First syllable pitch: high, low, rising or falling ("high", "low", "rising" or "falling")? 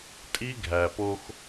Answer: high